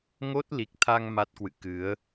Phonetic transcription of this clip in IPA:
ŋo˦˥t̚li˨˩k̚t̪ʰa˧ŋ ma˦˥t̚kwɨ̰˧˨ kɨ˨˦ə̯

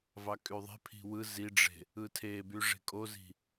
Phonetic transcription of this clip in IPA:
vɑkʼyðˤe̤ pʰi̤wɯ ziɖ͡ʐe̤ | ɯtʰeby ʐe̤kʼozi̤

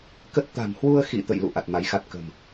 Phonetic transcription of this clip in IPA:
kə˦˥t̚ t̪a̤˨˩mhwu˧ə̯xḭ˧˨ t̪ə̰˧˨jlṵ˧˨ ʔa˨˩t̚ma˨˦jxa˦˥t̚ kə̤˨˩m

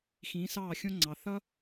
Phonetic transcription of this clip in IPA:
xĩː˨˥sɑː˥˩xʲõ˥ŋ͡ǀɑ˩˧ θʌ˥

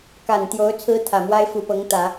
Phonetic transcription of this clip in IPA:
ka˨˩nt̪jo˧˥ʊ̯ t͡sʰɹ̩˥t̪ʰä˨˩mwa˥ɪ̯ fu˨˩pɤ˧˥ŋt̪ä˨˩˦

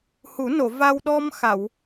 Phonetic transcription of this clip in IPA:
hu˨˩˦no˨˩˨ va˧w ɗɔ˧m xa˨˩˨w

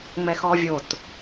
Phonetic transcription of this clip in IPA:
ŋ͡mɛxɔvʲot

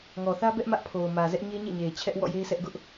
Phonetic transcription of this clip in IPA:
ŋɔ˨θä˦bɛ˦ʔ mä˦ʔpʰo˨ʊ̯mä˨zɛ˦ʔ ɲe˦ɲḛ˦˨ɲe˨ɪ̯ t͡ɕʰɛ˦ʔ wɔ̰˦˨je˦ɪ̯sɛ˦ʔ ɡʊ˦ʔ

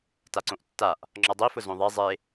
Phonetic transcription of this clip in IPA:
taǀõʔtːaʔ | ŋ͡ǁɔdˤifʊ zõðˤe zˤe

